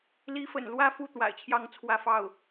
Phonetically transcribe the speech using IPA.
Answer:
l i˧˥ f ə̰˨˩ n l w ä˥˧ f u˥˩ t̪ w a̰˨˩ ɪ̯ t͡ɕʰ j ɑ˥˩ ŋ t͡sʰ w ä˥ f ɑ˥˩ ʊ̯

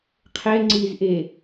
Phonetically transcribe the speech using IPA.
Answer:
qʰ ɛ ŋ͡ǀ i z ʔ e

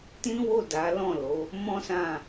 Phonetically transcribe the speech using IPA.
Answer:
t ĩ˦ w o˦˨ d a˨˦ l ɔ̃˦˨ l o˨˦ | m ɔ̃˦ s ã˦˨

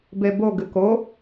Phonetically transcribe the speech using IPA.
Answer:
b e b o ɡ ɨ k o

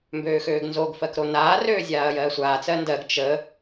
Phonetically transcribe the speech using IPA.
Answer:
m b øː x øː ɡ n z o ɡ f ɜ k ɾ o n aː r øː zʲ aː ɐ̯ j ɜː sʷ aː t͡s ɜ n d ɜ ɡ t͡ʃ ə

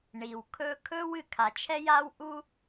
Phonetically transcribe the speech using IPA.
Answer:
ɳ i˩ w kʰ ɵ˥ kʰ ɵ˥ w ɨ˩ kʰ a˩ t͡ʃʰ ɛ˥ j a˥ w ʔ u˥

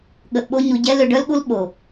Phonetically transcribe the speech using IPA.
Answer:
ɠ ə˨ ʔ ɓ o˧ ɲ u˨ ɟ ɛ˧ l ø˧ ɖ œ˦ l ɠ u˦ l ɓ o˨

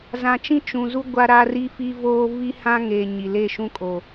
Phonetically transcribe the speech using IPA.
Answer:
z ã˨ t͡ʃ ĩ˦ t͡ʃ ũ˨ z u˦ ɡʷ a˦ ɾ a˦ r i˦ f i˦ v oː˦ v i˦ h ã˦ ŋ e˨ ɲ i˨ l e˦˨ ʃ ũ˦ kʼ o˨

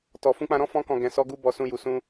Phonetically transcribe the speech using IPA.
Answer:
t ɔ˨ f ũ˧ k͡p ã˧ ɾ ɔ̃˦ f ɔ̃˧ k ɔ̃˨ ɡ ɛ̃˨ s ɔ˧ ɡ u˦ b ɔ˧ s ũ˧ j u˨ s ũ˧

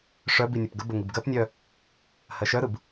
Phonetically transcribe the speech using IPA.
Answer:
ʂ œ b i nʲ ʊ p ɡ ə b ə ŋ i b ɡ ɜ p nʲ œ | h ɜ ʃ œ ɾ ɯ b

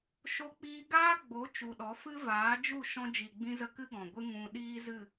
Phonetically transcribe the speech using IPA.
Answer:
ʃ o˧ k͡p iː˧ ɡ aː˦ ɡ͡b o˨˦ t͡ʃ u˨ ɗ ɔ˨˦ f ɨ˦ v aː˨˦ d͡ʒ u˦˨ ʃ ɔ̃˧ d͡ʒ i˨ ɡ͡b ĩ˧ z ə˧ k ɨ˦ ɡ ɔ̃˨ ɡʷ ɨ˦ ŋ ũ˧ ɗ iː˦ z ɨ˦˨

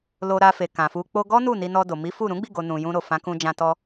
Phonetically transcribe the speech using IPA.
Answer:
l o˧ ɾ a˧ f e˨ k ã˨ f u˧ k͡p o˧ ɡ ɔ˦ n u˦˨ n i˧ n ɔ˧ d o˨ m i˨˦ f u˦˨ ɾ ũ˨˦ ɡ͡b i˦˨ ɡ o˨ n ũ˨ j ũ˧ ɾ o˨ f ã˨˦ k ũ˧ d͡ʒ ã˧ t ɔ˧

